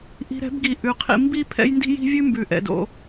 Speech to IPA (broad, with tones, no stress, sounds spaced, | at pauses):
ʔ i̤˧ ɾ ɛ̤˨˦ b ɡ i˨ ʔ ʉ˨ qʰ ḭ˧ m b i˦ pʰ ɛ̰˦ j n d i̤˦ j i̤˦ vʲ ʉ˦ m b ʉ˨ ʔ ɛ̰˨ d o̰˧